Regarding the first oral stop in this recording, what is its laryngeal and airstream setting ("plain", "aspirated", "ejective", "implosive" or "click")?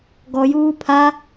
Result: plain